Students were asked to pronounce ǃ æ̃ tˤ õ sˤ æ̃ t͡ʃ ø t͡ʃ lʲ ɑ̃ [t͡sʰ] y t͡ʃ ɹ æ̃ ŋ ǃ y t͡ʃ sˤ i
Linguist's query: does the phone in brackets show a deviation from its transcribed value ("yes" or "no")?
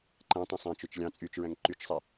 yes